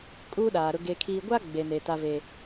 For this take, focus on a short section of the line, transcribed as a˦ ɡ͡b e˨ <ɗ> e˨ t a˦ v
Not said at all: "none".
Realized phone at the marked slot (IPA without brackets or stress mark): n